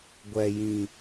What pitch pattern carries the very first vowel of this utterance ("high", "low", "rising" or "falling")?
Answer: low